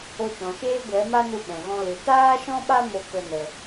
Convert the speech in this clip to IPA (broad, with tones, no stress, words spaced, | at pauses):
o˧t͡ʃɔ̃˨ʃeː˦ ɡʷɛ˨˦ma˦ nu˧ɓɛ̃˨ɣɔ̃˧ lɨ˨ taː˦ʃɔ̃˦ɓa˦ mo˧kə˧ nə˧